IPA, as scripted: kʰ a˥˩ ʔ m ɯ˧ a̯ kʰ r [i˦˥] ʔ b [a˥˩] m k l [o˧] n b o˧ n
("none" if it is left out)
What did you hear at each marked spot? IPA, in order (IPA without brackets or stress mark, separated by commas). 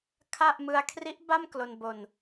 i˦˥, a˥˩, o˧